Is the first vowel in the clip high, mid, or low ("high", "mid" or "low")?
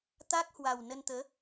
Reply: low